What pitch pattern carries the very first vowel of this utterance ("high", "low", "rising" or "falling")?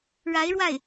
rising